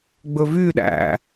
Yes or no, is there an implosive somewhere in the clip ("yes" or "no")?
yes